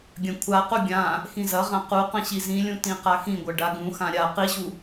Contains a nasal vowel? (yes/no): yes